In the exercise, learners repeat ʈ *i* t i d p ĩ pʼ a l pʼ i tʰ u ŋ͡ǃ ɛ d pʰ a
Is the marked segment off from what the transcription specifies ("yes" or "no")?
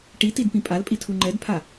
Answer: no